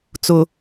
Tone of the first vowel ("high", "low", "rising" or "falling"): low